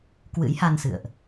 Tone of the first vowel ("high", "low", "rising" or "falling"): rising